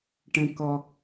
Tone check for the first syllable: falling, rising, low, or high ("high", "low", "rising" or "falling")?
low